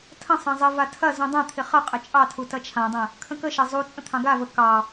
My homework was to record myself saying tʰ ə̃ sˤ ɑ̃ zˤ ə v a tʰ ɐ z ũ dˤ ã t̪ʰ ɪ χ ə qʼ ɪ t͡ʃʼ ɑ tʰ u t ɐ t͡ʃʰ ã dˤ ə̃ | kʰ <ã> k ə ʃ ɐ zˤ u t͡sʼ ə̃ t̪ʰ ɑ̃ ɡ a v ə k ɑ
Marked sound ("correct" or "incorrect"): incorrect